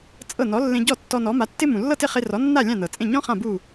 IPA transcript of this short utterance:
t͡sʼɤ˥˩ nɔ˩˥lːẽ˧ ɟɔ˥˩tːɔ˧ nɔ˩˥ma˩˥tːɪ˥ mũ˩lːɤ˥˩tɪ˥˩χe˧ rɔ˩˥nːa˥˩ lʲã˥˩nɤ˩t͡sʼẽ˥˩ ɲɔ̃˥ χã˥˩bu˥˩

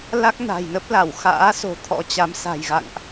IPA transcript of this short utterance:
la˦˥k̚ na̤˨˩jnə˦˥p̚la˧˩w xa̰ː˧˥so̤˨˩ t̪ʰɔ̰˧˥t͡ɕa˨˦m sa̤˨˩jɣa̰˧˨ŋʔ

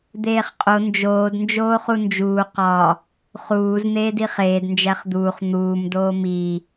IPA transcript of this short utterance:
d̪eːχqʼo nd͡ʒoːd nd͡ʒoːχund͡ʒuː qɒ | χuːz n̪eːdiχeːd nd͡ʒæχd̪uːχ n̪uːm doːmi

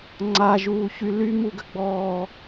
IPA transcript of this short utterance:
ŋ͡ǀaʒuːçy lymuɡəɡ͡bɔː

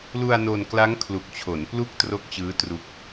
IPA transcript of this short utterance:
lu˧a̯no˧nkla˦˥ŋ kʰlu˨˩k̚t͡ɕʰo˩˦n plu˥˩k̚tro˦˥k̚ t͡ɕɯː˦˥ tru˦˥k̚

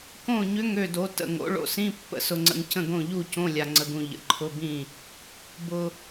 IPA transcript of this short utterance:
kõ˥˩ɲʏ˧˥˧ŋ ø˥˩do˩˥ tə̰˨ ŋo̰˩˥ɭo̰˨sĩ˧˥˧ pːə̰˨sʊ˨ŋ͡ǀə̰˨ŋ cə̃˥˩ɡõ˥˩ʎu˥˩cõ˧˥˧ lʲa˨ŋ͡ǀə˨ɡũ˨ ʎə̰˩˥ǃʰʊ˧˥˧bĩ˥˩ | bʊ˨

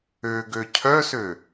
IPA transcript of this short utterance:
øɡø cʰœsø

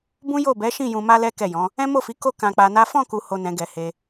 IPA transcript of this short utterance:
bũ˦jo˦˨ bɛ˨˦ʃĩ˦˨ jũ˧ma˦lɛ˦ kɛ˦˨jɔ̃˨˦ | ɛ̃˦mo˦˨fi˨˦ ko˦ kã˧k͡pa˧na˦ fɔ̃˦˨ku˨ho˨ nɛ̃˨˦ɡɛ˧he˧

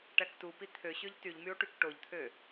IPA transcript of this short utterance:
ʈæktupi t̪ʰøɕøʎ tyʎmyo̯ ʈykʈoʎt̪ʰø

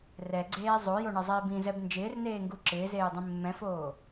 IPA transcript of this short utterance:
rɛɡ͡ǀeː zˤojoɳɛzˤiːb ĩzɛb nd͡ʒɪːrneːŋɡu ǁɪːzeːjdˤĩ mːɛ̃foː

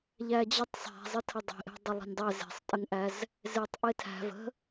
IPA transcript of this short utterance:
ʎæd͡ʑətˤ sˤæ̤ zˤətʰədˤe̤ʔe̤ dˤɘlˠə̤nʲdˤɛ ze̤sˤtʼəŋʔæz | zetˤ ʔetʰæ̤ və̤

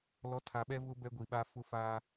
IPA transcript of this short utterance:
lɔ˨˦tʰa˨ɓɛ˦vʊ˦ bɛ˦ɡʷi˨ɓa˦ fʊ˦fa˦

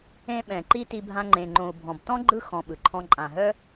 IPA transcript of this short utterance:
ẽ˧ɓɛ̃˨ ǃi˦ti˧bʱã˧ ŋ͡ǃẽ˨ŋ͡ǃõ˨u̯ bʱɔ̃˨btɔ̃˦ ɡ͡ǃɯ˦ xɔ̃˧ɓɯ˨ǃʰɔ̃˦ ǃʼã˨ɦœ˦

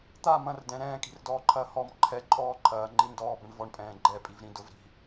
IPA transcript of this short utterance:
t̪a mɐ̃rdɛ̃ ɾɛ̃ːkʼi̤rdɔːǃʰɐː hɔm ǃʰɛǃʼɔː ǃʰɐːŋ͡ǃi ndɔːbɾə̃ɳ vɔɳpʼɛ̃ː ɡ͡ǃɛpʼivɾĩ dʊv ɾi̤

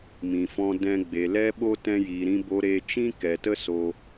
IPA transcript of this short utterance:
mĩ˨fɔ̃˧dɛ̃˧ ɡ͡be˨lɛ˦ɓo˦ tɛ̃˧jiː˨ɾĩ˧ bo˧ɾe˧t͡ʃĩ˦ kɛ˨tə˦ so˧

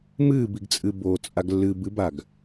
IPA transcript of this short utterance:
mɨːbiɡt͡sʼɨ bo t͡sʼaɡlːɨ bɨbaɡ

